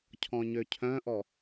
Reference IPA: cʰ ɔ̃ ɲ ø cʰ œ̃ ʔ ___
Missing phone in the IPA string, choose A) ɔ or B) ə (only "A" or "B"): A